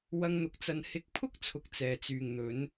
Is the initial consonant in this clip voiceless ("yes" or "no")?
no